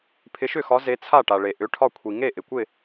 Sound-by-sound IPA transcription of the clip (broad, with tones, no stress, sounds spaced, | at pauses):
pʰ ɪ˨˦ ʃ ʏ˥˩ x ɒ˨˦ z e˨˦ t͡sʰ a˥˩ ʈ a˩ ɭ e˩ ʔ ʏ˩˧˩ ʈʰ ɒ˥˩ kʷʰ i˩ ŋ e˥˩ ʔ ɪ˩ kʷ ɪ˥˩